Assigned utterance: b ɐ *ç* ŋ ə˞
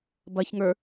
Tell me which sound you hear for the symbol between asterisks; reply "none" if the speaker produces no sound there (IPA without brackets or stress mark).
ç